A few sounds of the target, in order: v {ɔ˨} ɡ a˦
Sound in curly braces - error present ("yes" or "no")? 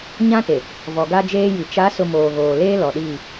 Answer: no